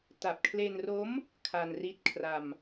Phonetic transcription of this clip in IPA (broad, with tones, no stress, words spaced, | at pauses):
ta˨˩p̚kʰle˧nro˦˥m | kʰa˧nri˦˥t̚kʰra˧m